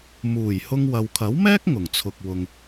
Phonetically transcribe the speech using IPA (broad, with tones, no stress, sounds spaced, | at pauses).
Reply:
m uː˨˩ j h ʊ˧ ŋ w ɐ˨ w kʰ ɐ˨˥ w m ɛː˥ k̚ ŋ ʊ˨˩ ŋ t͡sʰ ʊ˨ k̚ w ʊ˨ ŋ